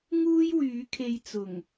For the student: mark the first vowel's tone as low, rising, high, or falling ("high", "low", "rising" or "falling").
high